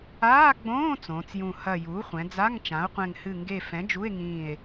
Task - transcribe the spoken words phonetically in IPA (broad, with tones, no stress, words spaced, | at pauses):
aː˧˥˧ɡ͡bõː˧˥˧ t͡sõː˩˧t͡sjũ˧˩ hɐ˧˩ juː˩˥χʷɛ̃˩˧d͡za˧˥˧ŋ t͡ʃã˩˥o̯qʷɛ̃˧˩ŋ hɨ˧˩ŋɡe˧˩fɛ̃˩˥ d͡ʒu˧˥˧e̯ŋĩː˧˩e̯